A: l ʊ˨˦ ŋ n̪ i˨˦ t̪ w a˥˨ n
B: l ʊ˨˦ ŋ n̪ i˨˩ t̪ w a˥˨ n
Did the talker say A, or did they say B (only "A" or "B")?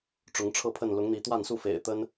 A